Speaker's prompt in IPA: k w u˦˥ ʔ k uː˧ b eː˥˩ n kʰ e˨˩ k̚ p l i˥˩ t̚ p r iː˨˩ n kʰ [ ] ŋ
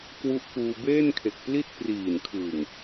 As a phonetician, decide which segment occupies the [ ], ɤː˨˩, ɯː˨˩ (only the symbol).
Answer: ɯː˨˩